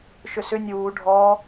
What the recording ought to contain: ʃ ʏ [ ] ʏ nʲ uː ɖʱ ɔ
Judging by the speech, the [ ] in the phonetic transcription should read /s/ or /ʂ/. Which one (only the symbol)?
s